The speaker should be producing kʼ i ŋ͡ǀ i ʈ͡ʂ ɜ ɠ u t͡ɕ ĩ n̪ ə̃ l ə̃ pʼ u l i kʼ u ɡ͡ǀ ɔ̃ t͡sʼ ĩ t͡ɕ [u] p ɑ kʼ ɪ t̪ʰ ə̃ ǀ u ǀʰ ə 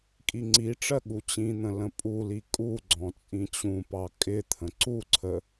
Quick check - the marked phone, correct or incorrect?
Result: incorrect